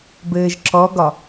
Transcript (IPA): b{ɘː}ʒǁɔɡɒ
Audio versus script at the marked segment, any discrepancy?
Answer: no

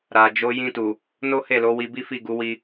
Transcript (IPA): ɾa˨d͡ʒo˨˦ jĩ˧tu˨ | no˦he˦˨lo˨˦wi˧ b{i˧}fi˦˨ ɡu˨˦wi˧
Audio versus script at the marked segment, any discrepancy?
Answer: yes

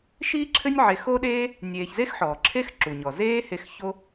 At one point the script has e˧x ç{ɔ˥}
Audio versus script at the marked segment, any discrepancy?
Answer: yes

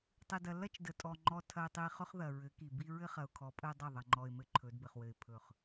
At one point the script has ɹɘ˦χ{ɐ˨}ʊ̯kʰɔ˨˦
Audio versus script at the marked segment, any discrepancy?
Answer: no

